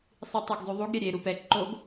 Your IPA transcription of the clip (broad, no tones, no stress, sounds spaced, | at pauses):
sˤ i tˤ ɛ ɡ zˤ y ðˤ u ɡ ɾʲ ɛ ɾʲ e ɾ u p ɛ ǃ o ɡ